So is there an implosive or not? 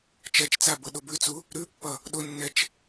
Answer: yes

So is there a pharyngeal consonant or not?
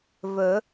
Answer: no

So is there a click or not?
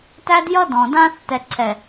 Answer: yes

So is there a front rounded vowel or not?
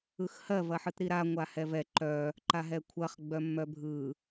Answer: yes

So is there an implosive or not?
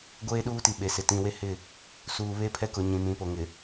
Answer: yes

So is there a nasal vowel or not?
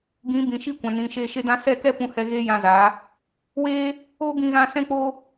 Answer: yes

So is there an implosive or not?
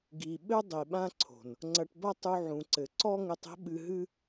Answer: yes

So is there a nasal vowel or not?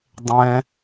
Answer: yes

